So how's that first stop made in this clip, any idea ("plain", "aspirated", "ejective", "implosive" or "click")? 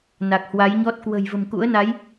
plain